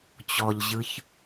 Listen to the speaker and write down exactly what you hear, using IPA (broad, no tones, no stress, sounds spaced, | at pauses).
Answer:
t͡ɕ ɔ ʎ ʑ ɯ ç